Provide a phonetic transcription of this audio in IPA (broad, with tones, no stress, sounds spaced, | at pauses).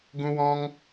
ɡ ũ˧ w ɔ̃˧ ŋ